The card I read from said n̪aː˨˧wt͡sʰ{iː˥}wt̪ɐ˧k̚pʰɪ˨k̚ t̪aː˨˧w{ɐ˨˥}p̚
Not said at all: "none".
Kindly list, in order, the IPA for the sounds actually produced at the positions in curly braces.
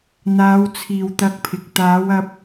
iː˨, ɐ˧

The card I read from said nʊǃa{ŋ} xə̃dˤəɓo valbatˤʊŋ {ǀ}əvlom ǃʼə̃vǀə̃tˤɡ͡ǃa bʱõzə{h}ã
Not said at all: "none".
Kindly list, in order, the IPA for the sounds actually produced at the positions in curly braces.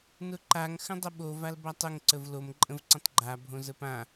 ŋ, ǀ, p

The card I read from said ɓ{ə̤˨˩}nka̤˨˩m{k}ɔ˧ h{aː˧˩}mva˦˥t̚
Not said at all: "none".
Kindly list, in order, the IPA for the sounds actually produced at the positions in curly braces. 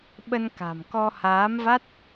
ə˧, k, aː˨˦

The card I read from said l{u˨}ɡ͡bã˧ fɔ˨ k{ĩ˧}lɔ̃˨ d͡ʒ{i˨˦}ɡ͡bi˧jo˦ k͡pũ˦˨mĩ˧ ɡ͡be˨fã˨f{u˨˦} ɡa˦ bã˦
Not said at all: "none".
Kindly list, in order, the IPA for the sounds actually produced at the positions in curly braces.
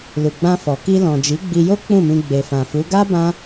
u˨, i˧, i˨˦, u˨˦

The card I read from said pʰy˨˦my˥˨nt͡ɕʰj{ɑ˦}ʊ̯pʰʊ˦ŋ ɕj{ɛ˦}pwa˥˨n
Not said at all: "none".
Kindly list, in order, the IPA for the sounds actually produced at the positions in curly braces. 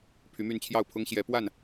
ɑ˥˨, ɛ˨˦

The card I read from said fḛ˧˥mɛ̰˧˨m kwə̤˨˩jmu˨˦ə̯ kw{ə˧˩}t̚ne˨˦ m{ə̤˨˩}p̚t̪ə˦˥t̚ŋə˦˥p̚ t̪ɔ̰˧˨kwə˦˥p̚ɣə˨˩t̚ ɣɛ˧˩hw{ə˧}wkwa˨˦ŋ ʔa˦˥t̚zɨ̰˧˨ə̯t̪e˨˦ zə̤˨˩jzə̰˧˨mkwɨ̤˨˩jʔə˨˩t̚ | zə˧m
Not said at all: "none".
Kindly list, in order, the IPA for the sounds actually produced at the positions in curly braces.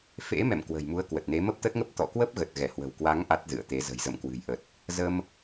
ə˨˩, ə˦˥, ə̤˨˩

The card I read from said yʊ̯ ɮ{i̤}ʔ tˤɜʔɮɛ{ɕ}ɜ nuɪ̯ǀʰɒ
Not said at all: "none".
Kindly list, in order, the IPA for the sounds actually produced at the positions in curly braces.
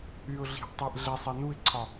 i̤, sˤ

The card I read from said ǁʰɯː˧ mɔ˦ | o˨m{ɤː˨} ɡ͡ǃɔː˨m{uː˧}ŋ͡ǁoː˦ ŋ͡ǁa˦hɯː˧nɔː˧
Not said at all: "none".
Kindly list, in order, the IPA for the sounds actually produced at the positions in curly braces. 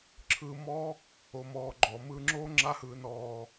ɔː˨, ɯː˧

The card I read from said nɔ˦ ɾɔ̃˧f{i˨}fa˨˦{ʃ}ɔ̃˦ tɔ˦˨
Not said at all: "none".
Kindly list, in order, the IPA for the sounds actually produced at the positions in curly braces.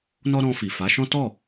i˨, ʃ

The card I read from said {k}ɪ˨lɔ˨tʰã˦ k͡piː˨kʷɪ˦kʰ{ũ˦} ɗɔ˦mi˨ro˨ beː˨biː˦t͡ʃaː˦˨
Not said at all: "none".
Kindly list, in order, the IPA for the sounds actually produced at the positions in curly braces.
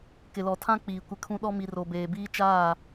k, ũ˦

